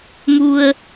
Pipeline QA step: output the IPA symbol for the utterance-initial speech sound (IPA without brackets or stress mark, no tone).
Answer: m